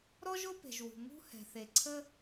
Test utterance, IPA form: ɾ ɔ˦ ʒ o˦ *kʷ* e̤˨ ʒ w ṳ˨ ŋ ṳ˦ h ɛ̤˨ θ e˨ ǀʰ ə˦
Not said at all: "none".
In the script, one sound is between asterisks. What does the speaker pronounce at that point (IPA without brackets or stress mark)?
p